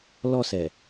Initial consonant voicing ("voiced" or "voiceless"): voiced